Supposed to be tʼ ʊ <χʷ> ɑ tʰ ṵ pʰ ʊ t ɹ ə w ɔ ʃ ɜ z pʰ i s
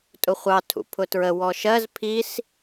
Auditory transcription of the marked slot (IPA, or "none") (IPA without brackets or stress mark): χʷ